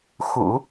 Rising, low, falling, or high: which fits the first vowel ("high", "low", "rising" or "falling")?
low